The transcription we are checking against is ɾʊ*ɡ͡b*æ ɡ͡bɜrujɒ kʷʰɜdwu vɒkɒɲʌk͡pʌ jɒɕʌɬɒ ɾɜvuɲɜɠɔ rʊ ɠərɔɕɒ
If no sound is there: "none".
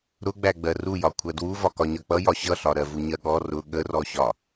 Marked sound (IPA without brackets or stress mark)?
ɡ͡b